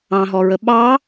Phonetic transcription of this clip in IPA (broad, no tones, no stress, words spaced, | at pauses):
ɑ̃ɦɔɹə ɓɑ